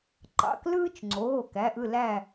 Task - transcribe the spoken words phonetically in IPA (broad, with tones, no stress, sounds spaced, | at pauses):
ǃ ɑ̰˩˧˩ k l ɯː˦ t͡ʃ ŋ͡ǀ oː˩˧˩ k æ˩˧˩ ʔ ɯ˦˨ l æ˦˨